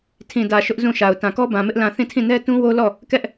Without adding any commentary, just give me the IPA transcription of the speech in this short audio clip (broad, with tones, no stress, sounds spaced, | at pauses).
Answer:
tʰ ĩ˨ d ä˨ ʃ ʊ˦ ʔ z ũ˦˨ ʃ a˨ ʊ̯ t ã˨ k ɔ˦ b ã˨ m ɪ˦ ʔ l ã˦˨ θ ĩ˦˨ tʰ ĩ˦˨ n ɛ˦ t ũ˦ w o˦ l ɔ˦˨ | k ɛ˦ ʔ